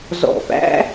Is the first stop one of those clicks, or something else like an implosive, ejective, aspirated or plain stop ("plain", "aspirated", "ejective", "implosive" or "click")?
plain